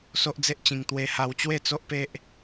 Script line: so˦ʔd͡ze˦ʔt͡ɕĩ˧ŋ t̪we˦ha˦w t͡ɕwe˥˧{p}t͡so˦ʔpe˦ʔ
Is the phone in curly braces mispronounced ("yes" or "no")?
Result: yes